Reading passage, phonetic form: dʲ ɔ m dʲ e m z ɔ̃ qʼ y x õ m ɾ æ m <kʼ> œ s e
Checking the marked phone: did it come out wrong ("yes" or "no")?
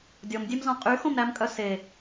no